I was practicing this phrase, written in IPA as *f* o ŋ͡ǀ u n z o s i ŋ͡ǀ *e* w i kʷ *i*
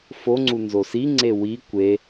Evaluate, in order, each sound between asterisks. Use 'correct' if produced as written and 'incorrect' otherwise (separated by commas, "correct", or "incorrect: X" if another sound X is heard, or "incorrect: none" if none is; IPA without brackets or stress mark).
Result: correct, correct, incorrect: e